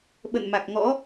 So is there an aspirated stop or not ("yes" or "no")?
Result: no